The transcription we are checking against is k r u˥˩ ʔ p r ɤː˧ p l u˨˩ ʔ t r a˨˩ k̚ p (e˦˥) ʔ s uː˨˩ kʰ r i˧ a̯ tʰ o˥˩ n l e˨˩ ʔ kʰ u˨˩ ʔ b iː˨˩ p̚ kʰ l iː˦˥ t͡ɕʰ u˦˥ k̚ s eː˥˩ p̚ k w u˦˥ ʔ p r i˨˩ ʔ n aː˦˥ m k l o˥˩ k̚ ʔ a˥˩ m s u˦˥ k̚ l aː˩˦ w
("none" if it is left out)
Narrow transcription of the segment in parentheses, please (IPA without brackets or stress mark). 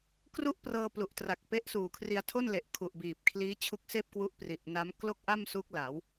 e˦˥